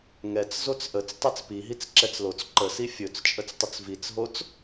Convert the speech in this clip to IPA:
ŋ ɛ t͡s z o t͡s ʔ ə t͡s tˤ ɛ t͡s p i ɦ i t͡s ǁ ɛ t͡s l o t͡s ǃ ə s i fʲ ɵ t͡s t͡ʃʼ ə t͡s tˤ ə t͡s v i t͡s ɦ o t͡s

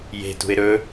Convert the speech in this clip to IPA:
j e̤ t ṳ ɪ̯ ɾ ɵ

